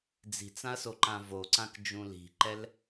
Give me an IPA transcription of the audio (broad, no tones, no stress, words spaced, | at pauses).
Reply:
d͡zi̤t͡sãɐ̯soǃã voǀãkd͡ʒũ li̤ǃɛl